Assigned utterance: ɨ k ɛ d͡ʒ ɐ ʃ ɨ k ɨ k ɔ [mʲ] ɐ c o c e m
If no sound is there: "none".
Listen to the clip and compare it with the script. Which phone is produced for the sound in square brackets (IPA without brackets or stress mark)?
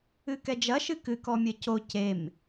mʲ